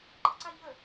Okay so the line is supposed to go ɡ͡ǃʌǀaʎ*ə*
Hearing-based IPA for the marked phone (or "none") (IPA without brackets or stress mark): ə